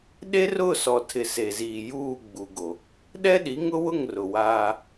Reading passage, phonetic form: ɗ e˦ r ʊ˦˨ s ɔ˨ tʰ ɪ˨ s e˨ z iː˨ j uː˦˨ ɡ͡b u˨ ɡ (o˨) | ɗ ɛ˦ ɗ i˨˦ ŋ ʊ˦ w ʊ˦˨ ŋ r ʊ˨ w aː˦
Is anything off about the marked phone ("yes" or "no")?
no